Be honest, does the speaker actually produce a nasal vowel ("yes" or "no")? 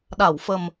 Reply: no